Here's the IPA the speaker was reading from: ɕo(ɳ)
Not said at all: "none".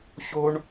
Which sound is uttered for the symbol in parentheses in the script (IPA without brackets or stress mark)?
ɳ